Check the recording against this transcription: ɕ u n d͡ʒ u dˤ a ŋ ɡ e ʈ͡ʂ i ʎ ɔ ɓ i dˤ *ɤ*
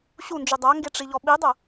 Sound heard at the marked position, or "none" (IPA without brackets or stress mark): ɤ